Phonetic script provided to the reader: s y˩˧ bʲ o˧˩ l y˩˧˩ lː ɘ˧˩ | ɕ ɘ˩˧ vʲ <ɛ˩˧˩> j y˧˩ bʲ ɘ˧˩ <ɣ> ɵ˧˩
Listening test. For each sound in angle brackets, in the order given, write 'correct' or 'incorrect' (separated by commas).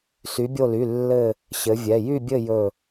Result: correct, incorrect